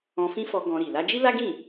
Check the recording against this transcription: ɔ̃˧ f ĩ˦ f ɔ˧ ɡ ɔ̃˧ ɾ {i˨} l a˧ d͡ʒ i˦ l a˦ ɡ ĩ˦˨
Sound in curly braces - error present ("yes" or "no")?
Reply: no